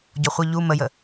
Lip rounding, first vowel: rounded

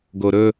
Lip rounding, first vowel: rounded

